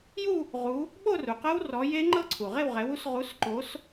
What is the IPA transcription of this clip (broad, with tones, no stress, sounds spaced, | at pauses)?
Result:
j u˥˧ | ʁ u˨˦ | ɓ o˥˧ r u˩ q ɤ˦˥ w r ɔ˨˦ j e˦˥ ŋ͡ǃ ɤ˥˧ ǀʰ u˩ ʁ e˥˧ w ʁ ɛ˨˦ w u˦˥ s ʁ u˨˦ s ǃ o˨˦ s